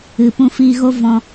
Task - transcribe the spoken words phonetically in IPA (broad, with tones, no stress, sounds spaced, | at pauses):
ɨ˨ p ũ˧ f iː˧ ɣ o˦ v ɔ̃˧